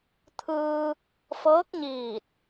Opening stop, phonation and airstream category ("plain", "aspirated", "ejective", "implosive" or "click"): aspirated